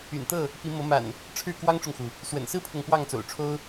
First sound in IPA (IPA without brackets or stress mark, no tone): y̰